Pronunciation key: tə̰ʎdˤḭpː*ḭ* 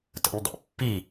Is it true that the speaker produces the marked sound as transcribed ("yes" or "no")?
no